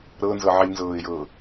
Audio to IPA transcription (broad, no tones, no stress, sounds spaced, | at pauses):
ɾ ɤ n z ɤ ʕ i l n z ɤː ɪ̯ j ɤː